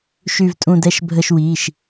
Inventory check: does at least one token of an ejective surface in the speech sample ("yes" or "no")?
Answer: yes